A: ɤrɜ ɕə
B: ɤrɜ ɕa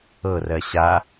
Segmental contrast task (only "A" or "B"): B